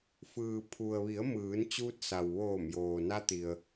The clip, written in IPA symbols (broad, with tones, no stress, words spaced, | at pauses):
fɯː˩ pʰu˩ə̯ʋi˩˧ə̯ mɯː˩˧nt͡ɕuː˧t̚sa˩wʋoː˧˩m joː˩na˧t̪i˩ə̯